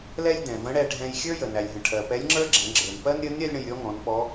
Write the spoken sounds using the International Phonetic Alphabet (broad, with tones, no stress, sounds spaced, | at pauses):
l ɛ˥ lʲ d ɛ̃˩ v ə̃˧˥ ɽ ɛ˧ ɖʱ ɛ̃˧ j xʲ ə˞˥ j ə˩ n æ˩ lʲ ɦ ə̃˩ ʈʰ ɜ˩ p ɛ˧˥ lʲ ŋ͡ǁ ə˞˥ ɡ͡ǁ ɛ̃˩˧ ɡ͡ǁ ə˞˩ n p ɜ˥ n ɾʲ ə˧˥ n ɾʲ ɜ˥ lʲ ɽ ə̃˧ j ɾʲ ɔ˧˥ ŋ ɔ̃˩˧ n p ɔ˧˥